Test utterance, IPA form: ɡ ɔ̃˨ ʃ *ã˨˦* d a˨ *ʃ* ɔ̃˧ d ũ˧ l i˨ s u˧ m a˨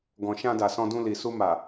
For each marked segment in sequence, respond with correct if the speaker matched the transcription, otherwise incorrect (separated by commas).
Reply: incorrect, incorrect